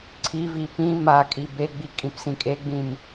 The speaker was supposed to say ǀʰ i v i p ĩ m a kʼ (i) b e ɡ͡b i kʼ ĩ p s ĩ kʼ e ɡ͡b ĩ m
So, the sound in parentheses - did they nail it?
yes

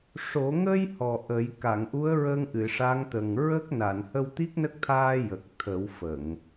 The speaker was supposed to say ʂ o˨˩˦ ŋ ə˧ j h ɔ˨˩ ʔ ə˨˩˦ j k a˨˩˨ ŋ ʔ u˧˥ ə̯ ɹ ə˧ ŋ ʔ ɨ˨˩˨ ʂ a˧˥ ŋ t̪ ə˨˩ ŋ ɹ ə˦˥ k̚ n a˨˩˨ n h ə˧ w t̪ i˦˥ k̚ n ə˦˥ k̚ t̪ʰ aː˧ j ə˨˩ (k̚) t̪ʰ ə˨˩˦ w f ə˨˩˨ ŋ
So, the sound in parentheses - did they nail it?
yes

